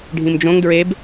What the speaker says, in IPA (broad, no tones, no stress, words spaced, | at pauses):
ɖʱĩmd͡ʒõŋ dɹeb